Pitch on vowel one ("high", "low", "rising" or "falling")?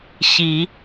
rising